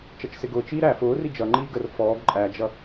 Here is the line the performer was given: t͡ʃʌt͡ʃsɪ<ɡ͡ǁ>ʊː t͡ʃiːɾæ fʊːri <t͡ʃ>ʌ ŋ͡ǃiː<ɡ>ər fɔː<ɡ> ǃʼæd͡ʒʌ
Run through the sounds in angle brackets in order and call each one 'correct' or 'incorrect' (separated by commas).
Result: incorrect, incorrect, correct, correct